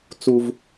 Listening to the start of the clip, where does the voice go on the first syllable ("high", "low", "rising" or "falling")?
high